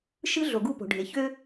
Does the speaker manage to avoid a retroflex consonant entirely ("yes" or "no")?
no